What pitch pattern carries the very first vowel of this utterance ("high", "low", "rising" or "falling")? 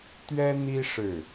high